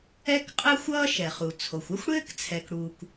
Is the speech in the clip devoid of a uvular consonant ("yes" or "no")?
no